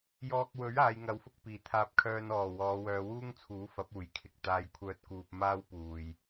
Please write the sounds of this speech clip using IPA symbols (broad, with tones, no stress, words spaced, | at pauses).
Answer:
jɔː˧k̚wɵ˨˥ɥ aː˨˧jŋɐ˨˥wfʊ˧k̚ piː˨˩t̪ʰaː˧p̚kʰœː˧n ɔː˨˩ wɔː˨˧wœː˨˧wuː˥ŋt͡sʰuː˨˥ fɐ˨˥p̚uː˨˩jkʰɪ˨k̚ t̪aː˧jkʷʰœː˧t̚kuː˨p̚ maː˥wpuː˨j